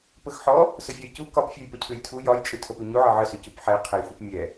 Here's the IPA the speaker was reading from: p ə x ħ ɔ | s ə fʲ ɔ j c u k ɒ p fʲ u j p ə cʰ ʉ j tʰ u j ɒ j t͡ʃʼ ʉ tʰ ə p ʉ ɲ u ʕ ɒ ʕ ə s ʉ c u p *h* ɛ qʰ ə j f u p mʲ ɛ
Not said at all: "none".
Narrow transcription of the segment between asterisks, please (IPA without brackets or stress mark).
ħ